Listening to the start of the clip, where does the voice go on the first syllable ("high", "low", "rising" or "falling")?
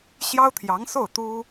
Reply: high